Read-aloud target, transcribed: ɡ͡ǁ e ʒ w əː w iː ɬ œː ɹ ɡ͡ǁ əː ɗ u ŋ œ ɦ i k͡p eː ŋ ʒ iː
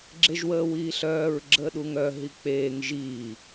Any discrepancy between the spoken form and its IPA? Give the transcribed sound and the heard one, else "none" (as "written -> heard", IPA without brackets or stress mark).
none